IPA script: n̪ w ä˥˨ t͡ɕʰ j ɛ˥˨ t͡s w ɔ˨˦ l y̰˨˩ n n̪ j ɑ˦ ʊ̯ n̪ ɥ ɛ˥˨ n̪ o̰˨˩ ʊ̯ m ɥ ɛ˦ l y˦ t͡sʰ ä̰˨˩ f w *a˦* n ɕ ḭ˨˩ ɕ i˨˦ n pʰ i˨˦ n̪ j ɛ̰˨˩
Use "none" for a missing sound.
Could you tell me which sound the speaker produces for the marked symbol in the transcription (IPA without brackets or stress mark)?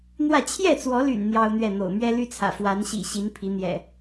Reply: a˨˦